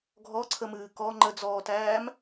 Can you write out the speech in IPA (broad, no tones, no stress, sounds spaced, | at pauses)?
ɡʱ ɔ ǀʰ ə m ɨː k ɔ ŋ͡ǃ ə d͡z ɔː t æː m